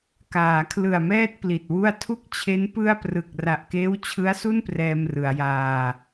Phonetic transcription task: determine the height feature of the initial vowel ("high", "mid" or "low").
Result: low